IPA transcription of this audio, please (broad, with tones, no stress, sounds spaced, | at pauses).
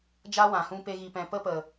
d͡ʒ a˦ w ã˨ h ũ˧ p e˧ ɣ i˨ p ɛ̃˨ p ə˦ p ə˨